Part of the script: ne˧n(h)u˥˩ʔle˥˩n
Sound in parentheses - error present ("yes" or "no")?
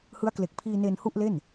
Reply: no